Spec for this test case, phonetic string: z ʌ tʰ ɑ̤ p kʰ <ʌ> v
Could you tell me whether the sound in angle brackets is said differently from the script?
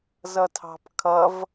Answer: no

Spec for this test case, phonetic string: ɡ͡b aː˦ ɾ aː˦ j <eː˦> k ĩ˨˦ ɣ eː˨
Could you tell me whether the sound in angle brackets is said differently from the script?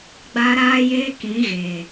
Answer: no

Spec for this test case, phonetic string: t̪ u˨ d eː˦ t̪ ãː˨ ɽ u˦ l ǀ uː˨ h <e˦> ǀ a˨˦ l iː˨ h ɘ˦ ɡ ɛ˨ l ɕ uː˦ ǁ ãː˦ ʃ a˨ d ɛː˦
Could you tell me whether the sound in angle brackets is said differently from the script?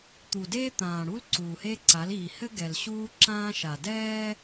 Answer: no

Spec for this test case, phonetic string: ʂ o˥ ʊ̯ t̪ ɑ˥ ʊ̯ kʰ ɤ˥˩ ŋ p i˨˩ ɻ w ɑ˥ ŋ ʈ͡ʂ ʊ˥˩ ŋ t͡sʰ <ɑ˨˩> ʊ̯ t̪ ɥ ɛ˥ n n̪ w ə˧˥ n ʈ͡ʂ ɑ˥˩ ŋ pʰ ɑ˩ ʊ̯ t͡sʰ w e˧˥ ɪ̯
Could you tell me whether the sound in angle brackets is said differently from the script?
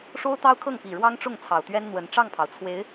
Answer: no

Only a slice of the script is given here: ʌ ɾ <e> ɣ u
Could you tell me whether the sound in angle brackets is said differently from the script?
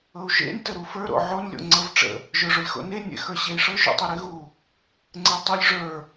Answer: no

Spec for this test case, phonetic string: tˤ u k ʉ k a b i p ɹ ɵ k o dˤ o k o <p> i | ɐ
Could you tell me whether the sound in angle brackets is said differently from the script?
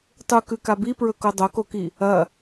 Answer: yes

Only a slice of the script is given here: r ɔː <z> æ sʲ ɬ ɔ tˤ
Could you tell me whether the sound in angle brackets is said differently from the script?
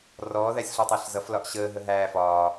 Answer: yes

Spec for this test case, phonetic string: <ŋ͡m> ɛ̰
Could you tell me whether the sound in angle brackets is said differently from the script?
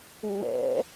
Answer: no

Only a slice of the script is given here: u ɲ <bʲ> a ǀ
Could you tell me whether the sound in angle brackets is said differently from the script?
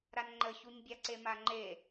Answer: no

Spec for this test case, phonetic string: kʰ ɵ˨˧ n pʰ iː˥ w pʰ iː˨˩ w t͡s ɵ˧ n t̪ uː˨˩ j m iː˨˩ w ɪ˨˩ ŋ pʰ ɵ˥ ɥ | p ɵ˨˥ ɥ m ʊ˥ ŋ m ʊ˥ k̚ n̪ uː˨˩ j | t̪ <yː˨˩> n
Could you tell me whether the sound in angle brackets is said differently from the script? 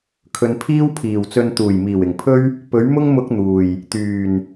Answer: no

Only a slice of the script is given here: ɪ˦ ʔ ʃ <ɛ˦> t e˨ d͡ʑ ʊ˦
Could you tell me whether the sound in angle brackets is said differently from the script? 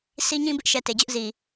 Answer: yes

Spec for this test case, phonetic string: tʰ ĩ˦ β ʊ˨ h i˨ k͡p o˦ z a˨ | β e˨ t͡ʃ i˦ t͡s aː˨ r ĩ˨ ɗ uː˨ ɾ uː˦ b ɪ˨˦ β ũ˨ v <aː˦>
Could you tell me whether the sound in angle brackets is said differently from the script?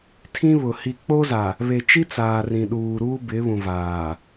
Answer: yes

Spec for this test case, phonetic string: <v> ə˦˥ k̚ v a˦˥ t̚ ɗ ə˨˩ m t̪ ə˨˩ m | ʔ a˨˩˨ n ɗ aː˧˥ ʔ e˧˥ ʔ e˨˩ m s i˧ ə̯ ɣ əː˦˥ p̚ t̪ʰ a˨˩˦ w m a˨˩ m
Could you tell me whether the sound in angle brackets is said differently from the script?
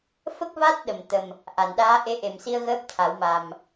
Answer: yes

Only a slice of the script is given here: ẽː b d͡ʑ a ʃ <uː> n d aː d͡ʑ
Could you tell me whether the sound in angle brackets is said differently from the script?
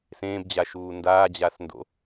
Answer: no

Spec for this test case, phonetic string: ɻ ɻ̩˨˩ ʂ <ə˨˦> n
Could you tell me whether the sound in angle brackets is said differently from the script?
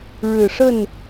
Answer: yes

